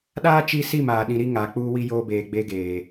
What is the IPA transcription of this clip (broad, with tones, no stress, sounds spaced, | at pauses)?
ɗ aː˦ t͡ʃ i˦ s i˦˨ m aː˨ ɗ ĩ˨ ɾ i˦ ŋ aː˨ k͡p uː˦ w i˦ j oː˦ b eː˨ ɡ͡b e˦ ɡ eː˨